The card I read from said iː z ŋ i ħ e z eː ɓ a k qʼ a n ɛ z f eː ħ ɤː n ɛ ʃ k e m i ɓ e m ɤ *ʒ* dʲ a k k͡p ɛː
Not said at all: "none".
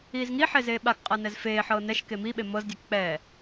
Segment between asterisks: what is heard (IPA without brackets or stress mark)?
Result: z